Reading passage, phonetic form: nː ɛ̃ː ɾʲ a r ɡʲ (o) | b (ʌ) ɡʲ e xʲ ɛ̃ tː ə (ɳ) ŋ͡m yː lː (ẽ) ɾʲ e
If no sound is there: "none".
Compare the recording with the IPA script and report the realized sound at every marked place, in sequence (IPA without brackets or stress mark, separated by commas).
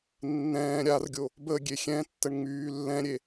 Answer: o, ə, ɳ, ɛ̃